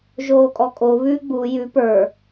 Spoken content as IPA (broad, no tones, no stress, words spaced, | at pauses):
ʒoːkʼɔkʼo βʉ ɡ͡bu jʉ pə˞